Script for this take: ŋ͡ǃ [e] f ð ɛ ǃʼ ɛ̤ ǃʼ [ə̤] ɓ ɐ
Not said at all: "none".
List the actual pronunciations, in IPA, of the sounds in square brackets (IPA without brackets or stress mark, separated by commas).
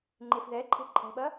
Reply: e, ɛ̤